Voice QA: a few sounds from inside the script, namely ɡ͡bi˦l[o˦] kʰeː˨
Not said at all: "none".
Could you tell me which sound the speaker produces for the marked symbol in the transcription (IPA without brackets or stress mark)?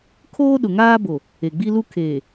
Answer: u˦